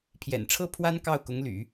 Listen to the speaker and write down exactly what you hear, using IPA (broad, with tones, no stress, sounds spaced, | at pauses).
pʰ j ɛ̰˨˩ n ʈ͡ʂʰ ɤ˥ pʰ w a˥ n k ɑ˥˩ ʊ̯ k ʊ˧˥ ŋ l y̰˨˩˦